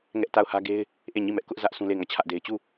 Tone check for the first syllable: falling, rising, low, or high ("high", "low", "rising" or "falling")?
high